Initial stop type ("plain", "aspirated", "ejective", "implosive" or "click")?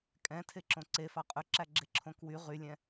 ejective